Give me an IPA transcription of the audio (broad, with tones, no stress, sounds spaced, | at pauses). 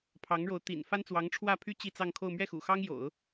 pʰ ɑ˧˥ ŋ ɻ o˧˥ ʊ̯ t̪ ḭ˨˩ n f a˥ n t͡s w ɑ˧˥ ŋ ʈ͡ʂʰ w ä˥˩ pʰ y˥ t͡ɕ i˥˧ t͡s ɑ˥˧ ŋ kʰ o˥˧ ʊ̯ m ɥ ɛ˥˩ x ṵ˨˩ x ɑ˥ ŋ j o̰˨˩˦ ʊ̯